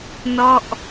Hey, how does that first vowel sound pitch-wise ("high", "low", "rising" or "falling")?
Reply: falling